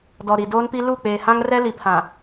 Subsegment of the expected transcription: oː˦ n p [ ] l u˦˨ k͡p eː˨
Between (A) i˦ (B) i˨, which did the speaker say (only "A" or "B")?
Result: A